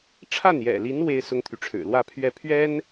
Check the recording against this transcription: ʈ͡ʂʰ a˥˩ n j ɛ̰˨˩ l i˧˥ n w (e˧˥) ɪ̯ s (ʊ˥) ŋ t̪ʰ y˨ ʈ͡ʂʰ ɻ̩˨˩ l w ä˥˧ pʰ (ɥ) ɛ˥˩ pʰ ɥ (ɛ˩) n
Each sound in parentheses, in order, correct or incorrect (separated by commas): incorrect, correct, correct, incorrect